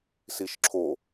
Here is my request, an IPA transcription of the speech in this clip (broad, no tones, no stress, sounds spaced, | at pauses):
s i ʃ ǁʰ o